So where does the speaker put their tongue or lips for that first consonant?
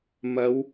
lips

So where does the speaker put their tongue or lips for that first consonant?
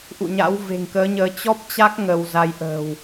throat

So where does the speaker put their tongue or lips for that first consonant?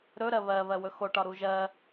tongue tip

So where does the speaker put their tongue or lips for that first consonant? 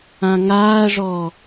velum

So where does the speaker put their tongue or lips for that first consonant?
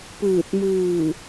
lips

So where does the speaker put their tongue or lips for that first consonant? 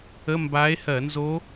lips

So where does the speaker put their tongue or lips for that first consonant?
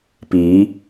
lips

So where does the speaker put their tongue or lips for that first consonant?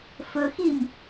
lips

